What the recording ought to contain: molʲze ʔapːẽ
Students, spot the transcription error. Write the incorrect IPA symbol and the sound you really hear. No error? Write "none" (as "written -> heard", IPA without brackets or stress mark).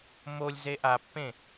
none